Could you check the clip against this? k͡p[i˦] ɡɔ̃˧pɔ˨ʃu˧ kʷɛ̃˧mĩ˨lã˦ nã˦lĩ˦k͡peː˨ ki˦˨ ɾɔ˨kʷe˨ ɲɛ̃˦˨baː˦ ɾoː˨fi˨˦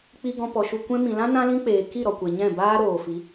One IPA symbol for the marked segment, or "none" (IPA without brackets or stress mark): i˧